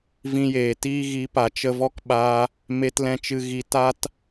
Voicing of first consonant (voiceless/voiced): voiced